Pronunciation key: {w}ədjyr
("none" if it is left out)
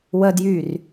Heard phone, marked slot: w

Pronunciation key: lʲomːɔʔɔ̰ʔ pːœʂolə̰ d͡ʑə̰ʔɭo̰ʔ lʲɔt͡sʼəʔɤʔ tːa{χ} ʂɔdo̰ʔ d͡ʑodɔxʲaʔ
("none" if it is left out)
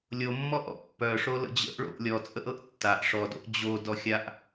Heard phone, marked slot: ʔ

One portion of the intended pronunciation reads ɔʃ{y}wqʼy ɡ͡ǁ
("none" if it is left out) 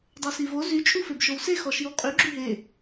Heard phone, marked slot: i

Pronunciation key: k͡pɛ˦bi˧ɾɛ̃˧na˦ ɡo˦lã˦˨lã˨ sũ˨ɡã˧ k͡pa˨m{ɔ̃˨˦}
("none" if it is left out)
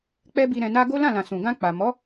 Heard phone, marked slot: ɔ˨˦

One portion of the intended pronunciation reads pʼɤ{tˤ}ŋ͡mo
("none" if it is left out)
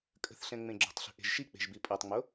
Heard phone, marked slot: tˤ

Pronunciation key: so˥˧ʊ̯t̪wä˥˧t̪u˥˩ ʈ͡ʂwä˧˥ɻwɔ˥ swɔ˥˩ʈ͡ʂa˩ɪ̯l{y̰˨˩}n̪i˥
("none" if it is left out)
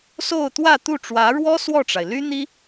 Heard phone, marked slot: y˥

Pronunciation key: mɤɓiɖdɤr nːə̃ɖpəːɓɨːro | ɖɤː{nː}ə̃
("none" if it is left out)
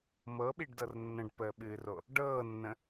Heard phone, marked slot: nː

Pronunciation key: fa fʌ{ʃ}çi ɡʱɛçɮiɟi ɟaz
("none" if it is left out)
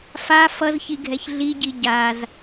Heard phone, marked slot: z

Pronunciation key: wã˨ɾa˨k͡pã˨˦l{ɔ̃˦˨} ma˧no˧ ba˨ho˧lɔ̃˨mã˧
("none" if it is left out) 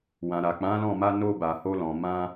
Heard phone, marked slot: ɔ̃˦˨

